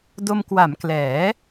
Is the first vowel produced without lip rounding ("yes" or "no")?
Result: no